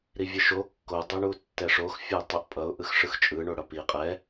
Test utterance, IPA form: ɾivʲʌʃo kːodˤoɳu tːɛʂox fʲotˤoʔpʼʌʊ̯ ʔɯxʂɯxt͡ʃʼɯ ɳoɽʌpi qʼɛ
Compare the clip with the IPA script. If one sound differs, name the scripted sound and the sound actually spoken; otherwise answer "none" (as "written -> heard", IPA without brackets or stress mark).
none